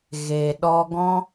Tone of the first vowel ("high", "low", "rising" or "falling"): low